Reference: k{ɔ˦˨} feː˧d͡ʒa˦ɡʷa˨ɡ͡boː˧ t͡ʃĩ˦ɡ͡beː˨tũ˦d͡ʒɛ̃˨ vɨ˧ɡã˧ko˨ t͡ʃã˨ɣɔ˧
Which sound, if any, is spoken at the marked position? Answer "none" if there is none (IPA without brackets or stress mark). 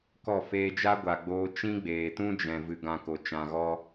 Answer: ɔ˦˨